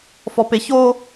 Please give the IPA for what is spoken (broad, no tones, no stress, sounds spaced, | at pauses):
f ɔ p e ç o